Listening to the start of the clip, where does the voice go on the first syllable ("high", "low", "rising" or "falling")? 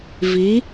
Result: rising